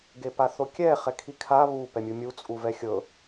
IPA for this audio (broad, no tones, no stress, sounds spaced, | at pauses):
ɡ e p a θ o kʲ ɛ χ ɛ kʰ i kʰ a β u p ɛ mʲ u mʲ u t͡sʼ u v ɛ xʲ ɤ